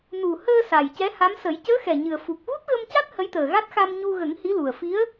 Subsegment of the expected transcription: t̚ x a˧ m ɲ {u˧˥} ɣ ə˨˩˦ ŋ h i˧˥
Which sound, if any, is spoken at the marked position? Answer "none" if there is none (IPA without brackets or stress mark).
u˧